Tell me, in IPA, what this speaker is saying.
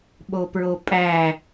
ɓopɹopʼæ

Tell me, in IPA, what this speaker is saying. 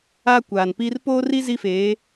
a˦ kʷaː˨npiː˦r poː˦ri˦ zi˦feː˨˦

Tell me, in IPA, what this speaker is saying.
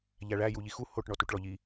ʎæɭæ juʎixu hoʈ ɳɔtuʈɭɔʎi

